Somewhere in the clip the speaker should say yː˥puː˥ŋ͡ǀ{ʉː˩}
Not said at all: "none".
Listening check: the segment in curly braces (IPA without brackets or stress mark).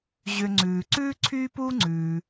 ʉː˩